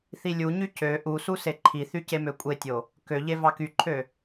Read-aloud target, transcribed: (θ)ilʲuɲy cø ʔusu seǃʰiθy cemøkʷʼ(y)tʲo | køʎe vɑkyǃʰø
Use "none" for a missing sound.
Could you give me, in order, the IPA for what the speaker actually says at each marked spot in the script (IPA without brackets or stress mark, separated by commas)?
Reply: θ, e